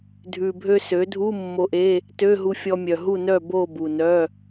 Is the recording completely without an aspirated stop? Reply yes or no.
yes